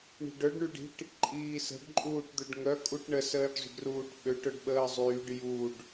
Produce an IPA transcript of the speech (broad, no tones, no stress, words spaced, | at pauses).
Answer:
ɳi̤ɖœɖ ɳyɖi̤ʈ | ǃʼiːsə̤ɖ ǃʼuːʈd̪øɖŋœ kʼuʈɳə səːɖzˤṳɖruːʈɓøʈ œɖɓəːzˤyːɖ juɖ